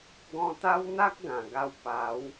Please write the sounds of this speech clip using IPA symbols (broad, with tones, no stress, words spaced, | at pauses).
ɡɔ̃˧t̪a˦wn̪a˦k̚ ɡã˨˩ɡa˧w pa˨˦w